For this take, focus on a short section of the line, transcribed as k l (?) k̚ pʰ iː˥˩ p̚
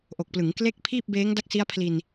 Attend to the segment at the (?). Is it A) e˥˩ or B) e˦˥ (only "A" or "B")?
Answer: A